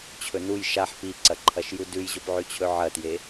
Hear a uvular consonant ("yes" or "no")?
no